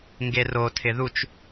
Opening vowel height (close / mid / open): mid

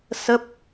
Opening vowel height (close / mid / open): mid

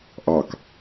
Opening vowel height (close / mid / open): open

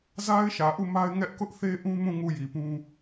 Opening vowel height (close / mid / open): open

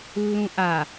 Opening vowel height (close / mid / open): close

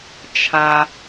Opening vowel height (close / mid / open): open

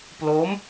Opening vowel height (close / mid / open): mid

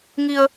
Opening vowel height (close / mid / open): close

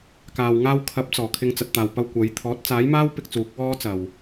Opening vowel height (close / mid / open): open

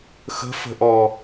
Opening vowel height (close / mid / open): mid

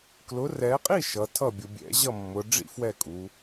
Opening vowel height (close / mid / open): close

